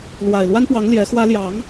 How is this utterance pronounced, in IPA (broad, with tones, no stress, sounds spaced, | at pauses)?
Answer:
l w a˨˩ ɪ̯ l w a˥ n p w ɑ˧˥ ŋ l j ɛ˧˥ x w ä˥ l j ɑ˧˥ ŋ